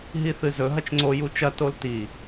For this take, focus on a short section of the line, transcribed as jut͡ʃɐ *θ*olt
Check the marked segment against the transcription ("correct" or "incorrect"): incorrect